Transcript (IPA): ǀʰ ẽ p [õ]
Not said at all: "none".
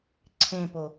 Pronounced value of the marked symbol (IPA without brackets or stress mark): o